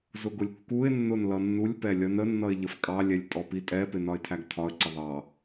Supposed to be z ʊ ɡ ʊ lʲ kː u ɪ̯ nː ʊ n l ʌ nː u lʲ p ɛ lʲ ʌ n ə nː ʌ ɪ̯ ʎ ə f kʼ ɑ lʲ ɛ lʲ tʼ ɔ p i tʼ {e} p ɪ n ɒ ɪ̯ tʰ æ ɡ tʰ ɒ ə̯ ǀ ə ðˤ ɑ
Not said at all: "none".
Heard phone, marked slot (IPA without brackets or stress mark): ɛ